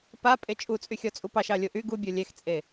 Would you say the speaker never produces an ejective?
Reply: no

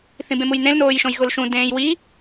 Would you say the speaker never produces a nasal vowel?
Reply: no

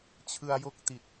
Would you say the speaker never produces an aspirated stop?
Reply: no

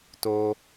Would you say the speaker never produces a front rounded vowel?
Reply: yes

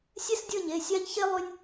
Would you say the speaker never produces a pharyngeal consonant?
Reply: yes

